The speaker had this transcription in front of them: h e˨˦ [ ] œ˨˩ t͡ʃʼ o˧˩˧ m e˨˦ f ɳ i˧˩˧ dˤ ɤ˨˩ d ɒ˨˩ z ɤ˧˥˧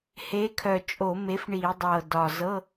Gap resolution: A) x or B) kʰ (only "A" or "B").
B